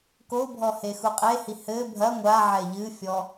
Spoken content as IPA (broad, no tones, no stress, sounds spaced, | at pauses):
k o bʱ ɔ h e x u qʼ e h i h ɘ bʱ ɐ ŋʷ a ʕ ɛ ʎ ɨ fʲ ɔ